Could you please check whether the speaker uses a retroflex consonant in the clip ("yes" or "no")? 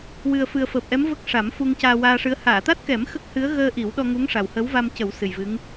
yes